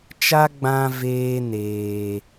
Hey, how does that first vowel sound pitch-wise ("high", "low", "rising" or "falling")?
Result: high